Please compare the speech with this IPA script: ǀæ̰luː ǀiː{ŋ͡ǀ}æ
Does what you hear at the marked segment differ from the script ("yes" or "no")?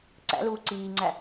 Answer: no